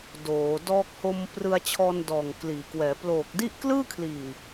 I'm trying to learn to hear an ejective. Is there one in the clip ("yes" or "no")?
no